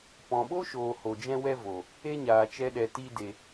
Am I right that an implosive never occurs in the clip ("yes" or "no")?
no